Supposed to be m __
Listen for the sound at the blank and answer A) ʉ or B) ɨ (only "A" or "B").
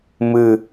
B